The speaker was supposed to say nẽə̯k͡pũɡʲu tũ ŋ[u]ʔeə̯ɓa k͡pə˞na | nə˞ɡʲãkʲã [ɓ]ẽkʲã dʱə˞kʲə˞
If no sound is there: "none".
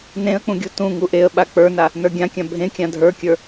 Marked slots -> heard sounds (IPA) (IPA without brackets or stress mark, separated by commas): u, bʱ